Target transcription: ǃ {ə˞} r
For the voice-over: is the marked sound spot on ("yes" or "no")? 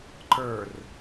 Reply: yes